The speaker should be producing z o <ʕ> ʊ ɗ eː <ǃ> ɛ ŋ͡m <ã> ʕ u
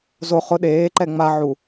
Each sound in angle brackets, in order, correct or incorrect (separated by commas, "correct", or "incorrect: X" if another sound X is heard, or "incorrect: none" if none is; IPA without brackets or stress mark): incorrect: χ, correct, incorrect: a